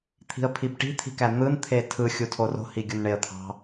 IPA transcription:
t̪ʰ i̤ ə̯ pʰ i b ʈ i̤ t̪ʰ i̤ k æ n̪ ɯ n t̪ʰ e tʰ ɯ xʲ u tʰ o r o̤ h i ɡʲ u n ɳ e ə̯ t̪ʰ ɑ̤

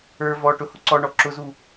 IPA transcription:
ə˞ v ɔ ʈ ʊ h ʊ ǀ ɔ ɳ ɔ ǁ ʊ z u

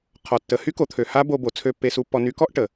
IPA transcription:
qʰ ɔ˩ tː ə˩˧ h y˧˥ k o˩˧ t̪ʰ ø˩ h a˥ b o˧ b o˩˧ t͡sʰ ø˧ pː e˧ s u˧ pː ɔ˧ n y˧˥ k ɔ˥ ʔ ʈ ə˩

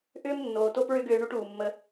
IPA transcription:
ʔ ʏː˦ m nː oː˨ t o˧ p ɹ ʏ˦ ɡ ʏː˧ ɳ u˧ ʈ uː˨ mː ə˧

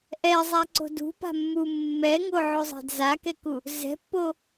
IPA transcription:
ʔ ɛ zˤ a ǀ o̤ d ṳ p a̤ mː u mː ɛ ŋ o ʕ o zˤ ɛ̤ d z a k ɛ k u | z ɛ̤ pː o

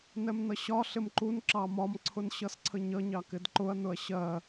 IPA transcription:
n ɛ m n ʌ ɕ ɒ ɬ ɪ m ǃ u n ǁ ɑ m ɒ m ǀʰ ʊ n ɕ ʌ s ǀʰ ə ɲ ʌ ɲ ɑ k ɪ d ǃ ʊ ɐ̯ n ʊ ɐ̯ ɕ ɜ

